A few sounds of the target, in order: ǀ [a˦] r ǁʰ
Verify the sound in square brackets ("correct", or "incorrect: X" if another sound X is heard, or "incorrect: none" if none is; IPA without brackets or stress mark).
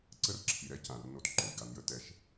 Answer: incorrect: ə˦